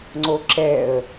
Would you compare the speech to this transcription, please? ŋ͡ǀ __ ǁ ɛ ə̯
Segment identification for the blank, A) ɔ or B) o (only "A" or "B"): B